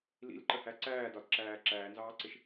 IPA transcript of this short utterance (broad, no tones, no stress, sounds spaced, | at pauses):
l ḭ l ǃ ə h æ ǀ æː d ɒ d ǁ æː ǁ æː n z ɑː ǀ ɪ ʃ